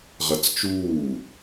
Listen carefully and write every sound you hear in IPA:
ʁ ɐ t͡s t͡ʃ uː

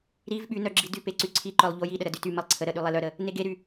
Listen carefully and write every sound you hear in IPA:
ɾ i v ɓ y n œ ɡ͡ǁ i d y p e ǀ y ǀʰ i ǃ œ lˠ ʎ o j i ɗ ə ɾ ə d y t y m ə lˠ ǀʰ ə ɾ ə ɗ y lˠ e l œ ɾ ə | n e ɡ e ɾ y

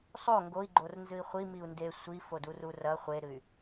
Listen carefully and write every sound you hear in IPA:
sˤ o ŋ ɡ o i̯ ɡ͡ǃ o r n z ɨ i̯ χʷ i m i u̯ n d e sʷ i f o d u r u r ɐ χʷ e ɾ ɨ y̯

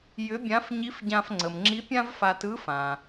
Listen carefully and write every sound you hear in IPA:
j ʏ˧˥ bʲ ã˧˥ f ɲ i˧˥ f ɟ ã˧ f ŋ͡ǀ ə˩ m ŋ͡ǁ i˧˥ pʲ ã˥ v f a˧ t ɯ˧˥ f ã˩

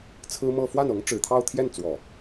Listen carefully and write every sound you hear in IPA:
t͡sʰ ɹ̩˥ m ɤ˥˧ f w a˥˩ n ɤ˧˥ ŋ ʈ͡ʂ ɻ̩˨˩ t̪ʰ ɑ˥˧ ʊ̯ t̪ʰ j ɛ˥˩ n t͡s w ɔ˨˩˦

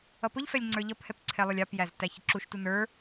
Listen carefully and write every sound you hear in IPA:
ʌ p ʊ ʎ f ɛ lʲ ŋ͡ǀ ə˞ ʎ ʌ p h ɛ p ǀʰ ɛ lˠ ʊ lʲ ɑ p j æ z t æ ç ɪ ǁ u ʃ t u n ə˞

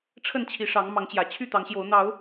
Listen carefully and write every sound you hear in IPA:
ʈ͡ʂʰ ə˥˨ n t͡ɕʰ i˨˦ ʂ ɑ˨˦ ŋ m ɑ˨˦ ŋ t͡ɕ j ä˨˩ t͡ɕʰ y˥˨ t̪ ɑ˨˦ ŋ ɕ j o˨˦ ʊ̯ n̪ ɑ˨˦ ʊ̯

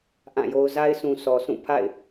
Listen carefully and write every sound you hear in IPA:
ʔ ã˦˨ j o˦ ʊ̯ z a˦ ɪ̯ sʰ ũ˨ s ɔ˨ s ũ˦˨ pʰ a̰˦˨ ɪ̯

